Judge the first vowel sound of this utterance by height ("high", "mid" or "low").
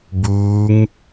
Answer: high